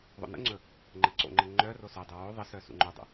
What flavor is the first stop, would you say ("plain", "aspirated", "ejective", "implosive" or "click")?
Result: click